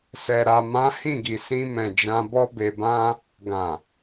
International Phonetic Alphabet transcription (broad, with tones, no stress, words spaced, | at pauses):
sɛ˨ɾa˨mã˨˦ hĩ˦˨ɡi˨sĩ˧mɛ̃˨ d͡ʒã˧bɔ˦ be˧bã˦ | ɡã˨